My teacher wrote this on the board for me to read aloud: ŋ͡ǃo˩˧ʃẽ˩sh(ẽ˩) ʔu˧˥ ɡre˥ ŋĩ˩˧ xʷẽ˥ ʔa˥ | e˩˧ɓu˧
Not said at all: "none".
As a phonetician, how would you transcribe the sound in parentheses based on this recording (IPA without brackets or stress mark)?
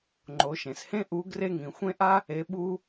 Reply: ẽ˥